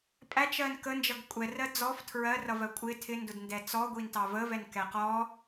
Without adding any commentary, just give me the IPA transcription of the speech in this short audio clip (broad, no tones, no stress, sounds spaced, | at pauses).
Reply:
pʼ æ t͡ʃ ɜ n k ə n d͡ʒ ʌ ɡ kʷʼ ɛ r ɜ d͡z ɔ f tʰ ɹ ɜ r ʌ v ɜ kʷʼ ɪ tʰ ɪ n d ʊ d n d ɛ t͡s ɔ ɡʷ i n t ɑ v ə v ɛ n k ɛ q ɔ